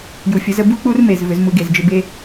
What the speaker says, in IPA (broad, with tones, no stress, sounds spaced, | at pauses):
j u˨˩ fʲ ə˨˩˦ z ə˨˦ b u˦ k͡p u˦ r m e˨˩ z v ʏ˨˩˦ z m u˨˦ ɡ e˨˩ z d͡ʒ ʏ˦ b e˦